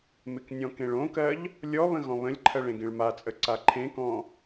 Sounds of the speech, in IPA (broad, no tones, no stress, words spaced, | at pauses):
mɪknʲɔ̃kẽɭ õkɜʎ | lʲɔβə̃ ɣɔ̃βə̃lʲǃʰɜɭ ẽɡẽɭmat͡sʼə ǀaǃʰẽkɔ̃